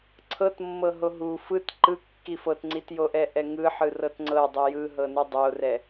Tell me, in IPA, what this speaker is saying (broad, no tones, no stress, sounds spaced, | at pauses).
ǀʰ ɤ t mː ɤ ɦ o ɦ u f ɯ t ǃ ɯ kː i f ɤ t ŋ͡ǀ i t j o ʔ ɛ ʔ ɛ ŋ ɯ ħ ɯ r ɤ t ŋ͡ǀ ɤ dˤ i j ɯ ɦ ɤ n ɯ dˤ o r ɛ